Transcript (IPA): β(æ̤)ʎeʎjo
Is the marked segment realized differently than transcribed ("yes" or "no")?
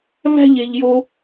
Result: no